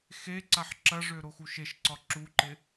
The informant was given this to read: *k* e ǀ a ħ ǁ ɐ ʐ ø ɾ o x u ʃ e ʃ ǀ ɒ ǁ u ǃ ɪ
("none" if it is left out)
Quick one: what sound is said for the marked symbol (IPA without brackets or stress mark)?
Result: x